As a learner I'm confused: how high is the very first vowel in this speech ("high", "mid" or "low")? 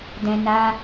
mid